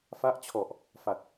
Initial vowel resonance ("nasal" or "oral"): oral